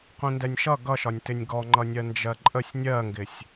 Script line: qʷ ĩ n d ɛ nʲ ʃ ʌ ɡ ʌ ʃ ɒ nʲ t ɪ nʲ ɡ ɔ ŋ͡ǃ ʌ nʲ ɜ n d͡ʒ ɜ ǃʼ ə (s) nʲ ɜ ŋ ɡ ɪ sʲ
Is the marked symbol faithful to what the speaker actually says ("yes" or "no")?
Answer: no